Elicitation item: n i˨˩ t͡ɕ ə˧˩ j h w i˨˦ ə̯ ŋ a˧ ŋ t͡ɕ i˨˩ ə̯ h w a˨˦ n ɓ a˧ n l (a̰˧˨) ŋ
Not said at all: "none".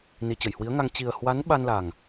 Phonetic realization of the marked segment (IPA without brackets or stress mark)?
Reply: a˨˩